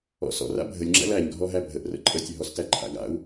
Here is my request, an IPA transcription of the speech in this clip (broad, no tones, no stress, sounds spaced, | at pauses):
ɔ̰ s ɔ̰ r a̰ bʱ ə lʲ ŋ͡ǁ æ̰ l æ ɲ ɡʱ ɔ ɦ æ bʱ ə ʔ r ə̰ ǃʼ ə tʲ ə ɦ ɔ s t æ ǃʰ a̰ ɡ a̰ u̯